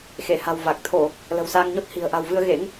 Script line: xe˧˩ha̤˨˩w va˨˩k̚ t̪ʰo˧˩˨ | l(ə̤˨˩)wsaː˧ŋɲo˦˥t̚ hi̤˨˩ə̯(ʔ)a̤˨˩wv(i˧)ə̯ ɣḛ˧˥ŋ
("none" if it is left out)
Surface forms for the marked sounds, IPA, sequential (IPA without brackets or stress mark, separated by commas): ə̤˨˩, ʔ, ɨ˧